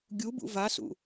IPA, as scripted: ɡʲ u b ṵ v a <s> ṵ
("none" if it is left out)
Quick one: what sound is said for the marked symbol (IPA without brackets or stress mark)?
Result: s